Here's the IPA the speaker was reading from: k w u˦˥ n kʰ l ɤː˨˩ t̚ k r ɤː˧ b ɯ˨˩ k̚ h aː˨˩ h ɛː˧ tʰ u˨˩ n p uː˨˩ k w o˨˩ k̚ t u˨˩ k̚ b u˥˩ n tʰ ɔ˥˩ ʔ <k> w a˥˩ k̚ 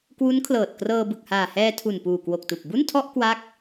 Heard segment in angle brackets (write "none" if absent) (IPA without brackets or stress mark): k